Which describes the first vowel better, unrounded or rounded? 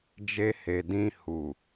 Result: unrounded